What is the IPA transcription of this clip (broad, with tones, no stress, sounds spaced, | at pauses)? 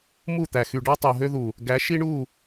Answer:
m u˦˨ t̪ æ˨ x y˨ ɖ ɑ˦ tˤ o˨ ɦ ø˦ ð u˨ | ɡ æ˨˦ ʃ i˦ ɳ u˦˨